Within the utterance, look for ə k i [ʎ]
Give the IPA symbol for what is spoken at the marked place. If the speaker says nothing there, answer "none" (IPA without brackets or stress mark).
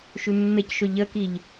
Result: ʎ